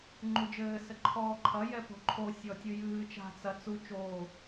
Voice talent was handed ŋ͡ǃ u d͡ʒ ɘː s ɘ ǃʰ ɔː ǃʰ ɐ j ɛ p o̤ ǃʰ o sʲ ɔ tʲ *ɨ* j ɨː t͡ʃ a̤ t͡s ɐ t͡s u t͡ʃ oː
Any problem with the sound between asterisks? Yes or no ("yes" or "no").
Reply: no